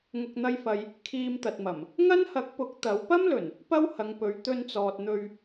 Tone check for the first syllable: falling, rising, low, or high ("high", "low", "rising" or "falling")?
low